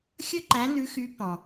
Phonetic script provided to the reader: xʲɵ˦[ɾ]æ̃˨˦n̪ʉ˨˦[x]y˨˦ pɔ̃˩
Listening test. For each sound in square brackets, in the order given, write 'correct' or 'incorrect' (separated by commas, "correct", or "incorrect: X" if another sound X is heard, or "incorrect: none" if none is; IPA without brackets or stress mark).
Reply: incorrect: ǃ, correct